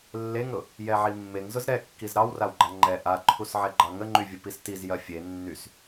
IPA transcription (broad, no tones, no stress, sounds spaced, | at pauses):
lː e ŋ ɾ ʊ | j ɛ ʕ i mː e ŋ z ʊ z ɾ ɛ kː i z ɾ ɑ w r a w ɡ͡ǃ a ŋ͡ǃ ɛ ʔ a ǃʰ u s ʕ ɛ ɡ͡ǃ ɑ ŋ ə ŋ͡ǃ y vʲ ə p i s t i z j ɐ fʲ e nː y s